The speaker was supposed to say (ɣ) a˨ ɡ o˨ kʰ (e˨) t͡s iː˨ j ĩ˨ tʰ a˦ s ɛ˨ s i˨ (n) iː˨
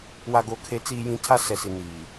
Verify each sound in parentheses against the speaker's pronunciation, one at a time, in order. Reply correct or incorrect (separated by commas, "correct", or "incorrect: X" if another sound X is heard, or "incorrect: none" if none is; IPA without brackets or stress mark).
incorrect: w, correct, correct